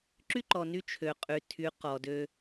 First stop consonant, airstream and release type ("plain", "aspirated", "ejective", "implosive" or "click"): click